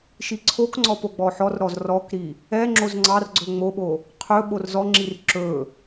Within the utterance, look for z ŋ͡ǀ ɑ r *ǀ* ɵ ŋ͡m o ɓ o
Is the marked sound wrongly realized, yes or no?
yes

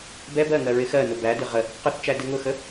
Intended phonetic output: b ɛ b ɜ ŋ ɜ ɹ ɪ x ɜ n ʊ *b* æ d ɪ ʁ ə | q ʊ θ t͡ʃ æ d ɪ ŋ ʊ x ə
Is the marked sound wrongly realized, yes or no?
no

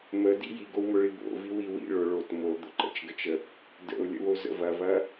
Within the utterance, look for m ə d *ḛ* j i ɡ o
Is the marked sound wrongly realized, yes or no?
yes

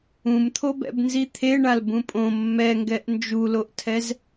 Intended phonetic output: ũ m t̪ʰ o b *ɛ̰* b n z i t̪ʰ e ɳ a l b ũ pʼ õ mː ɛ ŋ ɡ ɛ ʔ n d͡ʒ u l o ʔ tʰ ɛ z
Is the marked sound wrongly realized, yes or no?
no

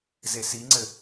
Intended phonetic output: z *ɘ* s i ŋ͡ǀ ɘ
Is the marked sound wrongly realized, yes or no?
yes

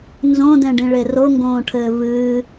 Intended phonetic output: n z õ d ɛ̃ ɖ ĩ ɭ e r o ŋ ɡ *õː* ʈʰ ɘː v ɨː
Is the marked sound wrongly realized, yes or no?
no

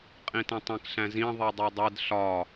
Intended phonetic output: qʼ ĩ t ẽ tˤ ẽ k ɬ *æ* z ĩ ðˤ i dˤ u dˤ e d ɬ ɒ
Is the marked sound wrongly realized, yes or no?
yes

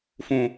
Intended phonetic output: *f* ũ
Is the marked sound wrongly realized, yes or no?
no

